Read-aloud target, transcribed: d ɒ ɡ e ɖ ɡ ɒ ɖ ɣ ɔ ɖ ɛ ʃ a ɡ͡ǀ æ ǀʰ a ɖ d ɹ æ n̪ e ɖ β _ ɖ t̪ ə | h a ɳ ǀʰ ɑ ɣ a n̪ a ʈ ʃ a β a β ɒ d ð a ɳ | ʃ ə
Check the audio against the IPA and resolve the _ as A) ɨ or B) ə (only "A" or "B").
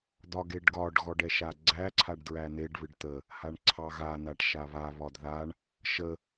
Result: A